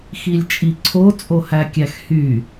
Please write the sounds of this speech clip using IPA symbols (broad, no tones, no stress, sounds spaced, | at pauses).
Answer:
x i lʲ t͡ʃʼ i ǀʰ o t͡sʼ o h æ kʲ æ x h y